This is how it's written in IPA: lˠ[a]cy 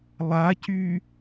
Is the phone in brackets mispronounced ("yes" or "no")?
no